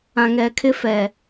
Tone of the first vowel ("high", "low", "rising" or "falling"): low